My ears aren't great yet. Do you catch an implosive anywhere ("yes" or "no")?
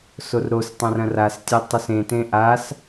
no